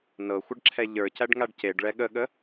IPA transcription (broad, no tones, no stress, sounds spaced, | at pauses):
n ɤ xʷ ə ɖ ǁʰ ɛ ʎ ə˞ c æ ɖ ŋ a ɖ c e ɖ ɭ ɛ ɠ ə ɠ ə